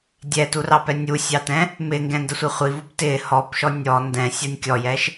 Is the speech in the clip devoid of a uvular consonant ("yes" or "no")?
no